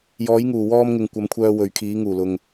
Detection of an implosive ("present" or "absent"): absent